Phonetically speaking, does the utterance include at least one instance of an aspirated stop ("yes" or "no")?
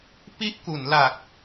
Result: no